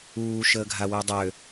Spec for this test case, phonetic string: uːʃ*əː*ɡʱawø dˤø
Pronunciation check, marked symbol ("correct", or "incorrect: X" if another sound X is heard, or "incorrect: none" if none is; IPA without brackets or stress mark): correct